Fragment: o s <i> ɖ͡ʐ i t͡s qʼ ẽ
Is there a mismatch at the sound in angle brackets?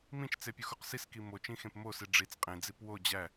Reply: no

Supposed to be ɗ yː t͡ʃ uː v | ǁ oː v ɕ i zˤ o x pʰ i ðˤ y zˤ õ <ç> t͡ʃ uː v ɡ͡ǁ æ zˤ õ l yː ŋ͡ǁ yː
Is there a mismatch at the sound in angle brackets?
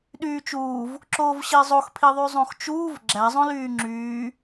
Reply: yes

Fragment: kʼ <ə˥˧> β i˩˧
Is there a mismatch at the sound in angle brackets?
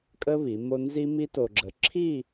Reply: yes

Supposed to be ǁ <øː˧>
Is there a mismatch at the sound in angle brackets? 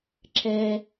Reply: yes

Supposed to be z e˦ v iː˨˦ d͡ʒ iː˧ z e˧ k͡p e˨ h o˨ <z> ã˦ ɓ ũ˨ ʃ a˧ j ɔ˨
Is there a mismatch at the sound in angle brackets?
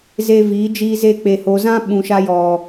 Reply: no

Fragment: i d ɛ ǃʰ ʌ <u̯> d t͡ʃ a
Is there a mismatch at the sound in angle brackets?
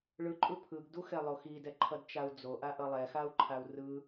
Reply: yes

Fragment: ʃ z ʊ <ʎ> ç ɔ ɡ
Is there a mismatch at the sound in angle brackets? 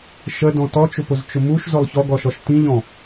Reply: yes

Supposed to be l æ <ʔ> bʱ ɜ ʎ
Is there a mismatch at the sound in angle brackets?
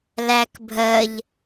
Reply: yes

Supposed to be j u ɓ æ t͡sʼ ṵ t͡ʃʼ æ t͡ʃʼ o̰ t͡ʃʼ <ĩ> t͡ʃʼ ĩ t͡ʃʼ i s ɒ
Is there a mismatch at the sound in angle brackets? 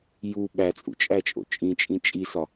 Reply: no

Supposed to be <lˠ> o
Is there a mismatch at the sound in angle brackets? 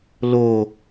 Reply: yes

